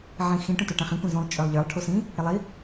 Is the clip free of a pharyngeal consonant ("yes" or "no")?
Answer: no